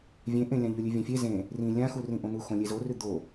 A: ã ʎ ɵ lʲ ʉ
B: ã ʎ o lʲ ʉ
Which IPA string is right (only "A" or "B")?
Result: A